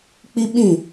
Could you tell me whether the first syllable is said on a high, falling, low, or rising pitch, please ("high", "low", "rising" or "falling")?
high